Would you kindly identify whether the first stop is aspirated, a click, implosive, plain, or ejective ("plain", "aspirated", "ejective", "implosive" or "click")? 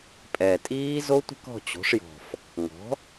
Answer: ejective